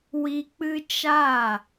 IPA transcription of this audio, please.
w i˧ k͡p ɨ˦ t͡ʃ a˦˨

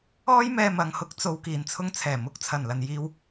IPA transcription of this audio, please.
ɔː˥ j m ɛː˧ m ɐ˨ ŋ h ʊ˧ k̚ t͡s o˨ w k iː˨˩ n t͡sʰ ʊ˧ ŋ t͡sʰ ɛː˨˩ m ʊ˨˥ k̚ t͡sʰ ɐ˨˩ n l ɐ˨ n j iː˧ w

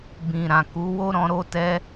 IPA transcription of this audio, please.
b ĩ˨ ɾ ã˨ k u˨˦ w o˦ ɾ ɔ̃˧ ɾ o˦ t ɛ˦

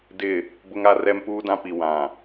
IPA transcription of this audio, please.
d ɪ˦˨ | b ʊ˦ ŋ a˦ r ɛ˦ m p uː˦ d ã˦ p i˨ w ã˨

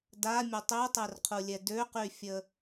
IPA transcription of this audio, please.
d a mʲ ə tˤ ø tˤ ɛ r qʰ u lʲ ɛ d ø q y fʲ ə

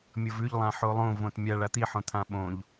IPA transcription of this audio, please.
mʲ ɤ v ʉ ʎ lˠ ã ħ o lˠ õ v õ t mʲ a ɭ a t̪ i ħ õ t̪ʰ ã ɓ õ ʎ

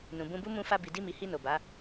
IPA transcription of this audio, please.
n ũ˨ b ũ˧ b u˦ m ũ˧ f a˧ b i˨ d i˧ m i˨ h i˧ n o˨ b a˨˦

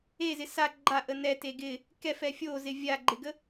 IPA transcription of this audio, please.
e z ɪ s a ɡ͡ǃ a ʔ ə n ɛ t e ɡ ɪ | k ɛ f ɛ fʲ o z ɪ vʲ a ɡ͡ǃ ɪ ɡ ə

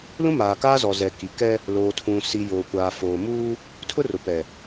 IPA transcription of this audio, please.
l ũ˦ m aː˨ k aː˦ z ɔ˨ z ɛ˨ k i˨ k ɛ˦ | l oː˨ tʰ ũ˨ s i˨ j oː˨ kʷ aː˨ f oː˨ m uː˦ | tʰ ʊ˦ r ʊ˨ p ɛ˨

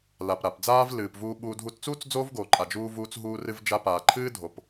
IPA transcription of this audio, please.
l a˩ p ɾ a˩ p d͡z aː˧ v l ɨː˩ p v uː˧ ɓ uː˧ dʱ u˧ t t͡s uː˥ t͡s d͡z oː˥ v ɡ oː˩ ǃʼ a˩ d͡ʒ uː˧ v uː˧ t͡s ɦ uː˧ r ɨ˧ v d͡ʒ a˧ p aː˩ ǃʰ ɨː˥ dʱ o˩ p

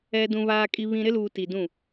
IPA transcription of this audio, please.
ɛ˨ d ũ˨ β aː˨ kʼ i˨ β ĩ˨ ɾ ɪ˦ l uː˨ t i˨ d ũ˦˨

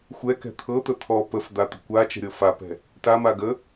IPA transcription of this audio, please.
xʷ ɛ k ɛ̤ t̪ʰ ɤ t̪ ə t̪ʰ ɔ p ə f d̪ a t̪ ə̤ kʷ a t͡ʃ ə̤ ɾʲ ɤ f a p ɛ̤ | t a m a ɡ ə

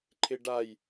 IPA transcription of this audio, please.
ǃʰ ɪ ɖ a j

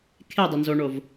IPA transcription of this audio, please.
kʰ e dˤ ə n z o ɳ o v

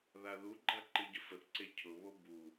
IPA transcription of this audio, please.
ð a ð u ɡ͡ǃ a ǃ ɨ ɟ ə f ə θ ǀ e cʰ ʊ β o b u

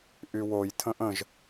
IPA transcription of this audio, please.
ʔ y w o j tʰ ə̃ ʔ ə̃ ʒ

